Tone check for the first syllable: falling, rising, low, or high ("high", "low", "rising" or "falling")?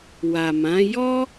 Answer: low